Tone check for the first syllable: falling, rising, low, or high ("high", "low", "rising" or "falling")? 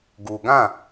low